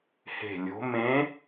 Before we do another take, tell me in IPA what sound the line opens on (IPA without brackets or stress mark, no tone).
h